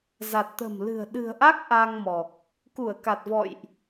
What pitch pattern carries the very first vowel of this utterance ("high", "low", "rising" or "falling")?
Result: low